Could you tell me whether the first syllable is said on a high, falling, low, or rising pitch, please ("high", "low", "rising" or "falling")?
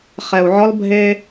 low